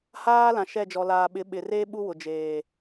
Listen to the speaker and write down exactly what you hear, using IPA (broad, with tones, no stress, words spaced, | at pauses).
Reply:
haː˦ lã˨ʃɛ˦˨d͡ʒɔ˨ laː˨ɓɪ˨˦ ɓɪ˨reː˦ ɓu˦wʊ˨ d͡ʒeː˨